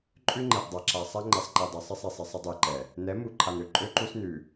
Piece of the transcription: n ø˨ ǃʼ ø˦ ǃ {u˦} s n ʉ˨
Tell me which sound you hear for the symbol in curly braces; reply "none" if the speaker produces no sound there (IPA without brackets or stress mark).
u˦